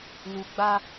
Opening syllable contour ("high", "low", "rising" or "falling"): low